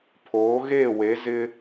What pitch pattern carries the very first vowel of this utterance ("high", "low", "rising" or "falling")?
rising